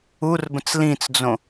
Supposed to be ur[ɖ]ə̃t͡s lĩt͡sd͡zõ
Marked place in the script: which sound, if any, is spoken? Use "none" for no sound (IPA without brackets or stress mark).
b